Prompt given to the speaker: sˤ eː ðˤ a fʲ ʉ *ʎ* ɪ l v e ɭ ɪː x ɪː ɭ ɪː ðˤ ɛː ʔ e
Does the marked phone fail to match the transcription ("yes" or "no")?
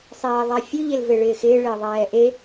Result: no